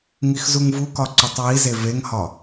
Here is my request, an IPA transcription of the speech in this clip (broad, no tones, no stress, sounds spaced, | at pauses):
ŋ i x z u ŋ v u k ɒ ǀ u tˤ w i z e v e ŋ h ɒ